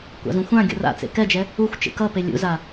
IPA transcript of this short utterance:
kʷ a̰ z ũ xʷ ã ɡʲ o̰ r a̰ t͡s ḛ k ɛ d͡ʒ ɛ | u xʷ t͡ʃ ḛ k ʌ p e lʲ ṵ z a

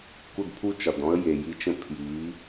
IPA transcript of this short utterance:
k u˦˨ d pʰ u˦ t͡ʃ ɒ˨ d ɔ̃˦ ə̯ j e˨ j i˧ t͡ʃ ə̃˧ pʰ j i˨˦

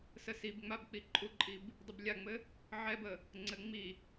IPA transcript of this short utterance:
s ə s i b ŋ͡m a b k͡p i ǃʼ u ǃʼ i b | dˤ ɘ b lʲ a ŋ͡m ɘ | ʕ ɛ b ə | ŋ͡ǀ ɘ ŋ͡m i

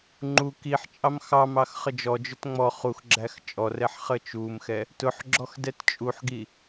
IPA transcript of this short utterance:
ŋ͡ǃ u k i ħ t͡ʃʼ ɑ m x ɑ m ɑ x χ ə d͡ʒ ɔ d͡ʒ ʊ t ŋ͡m ɔ χ u x ɡ͡ǁ æ x t͡ʃʼ ɔ r ɛ ħ χ ə t͡ʃ u m x ɛ | t ʊ ħ ɡ͡ǁ ɔ x d ɛ t t͡ʃʼ u ħ ɡ i

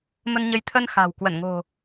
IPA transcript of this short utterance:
m ə˧ n ɲ ə˨˦ j t̪ʰ ə˧ n x a̤˨˩ w k w ə˧˩ n ŋ o̤˨˩

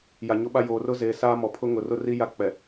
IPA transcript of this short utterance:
j a˨ ɲ o˦ ɓ a˦ j oː˨ r ʊ˦ z eː˨ s aː˦ m ɔ˨ pʰ ʊ˦ ŋ ʊ˨ r ʊ˦ r i˦ j a˦ k͡p ɛ˨

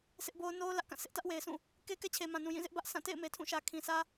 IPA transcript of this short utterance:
sʰ ɪ˦ ʔ b o˦ ʊ̯ n o˦ ʊ̯ l ä˦ ʔ k ã˦˨ s ɪ˦ ʔ t ä˦ ʔ w e˨ ɪ̯ s ũ˦˨ | k e˦ k ɛ˦ t͡ɕʰ e˨ m ã˨ n ũ˨ j ĩ˦˨ z ɪ˦ ʔ b ä˦ ʔ sʰ ã˦˨ t ḛ˦˨ ɪ̯ m e˨ tʰ ũ˦˨ ʃ ä˨ kʰ ĩ˨ sʰ ä˦

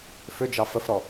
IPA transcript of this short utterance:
f ʏ d͡ʒ ɑ f ə f ɾ ɔ

